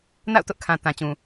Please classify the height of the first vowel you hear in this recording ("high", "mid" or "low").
low